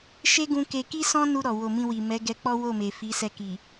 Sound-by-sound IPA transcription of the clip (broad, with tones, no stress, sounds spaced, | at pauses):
ʃ e˦ ɡ ũ˧ k e˧ k i˦ s ɔ̃˦ n u˧ ɾ ɔ˨ w o˨ m ĩ˧ w i˨ m ɛ˨˦ ɡ ɛ˧ k͡p ɔ˦ w o˦˨ m e˨ f i˨˦ s ɛ˧ k i˨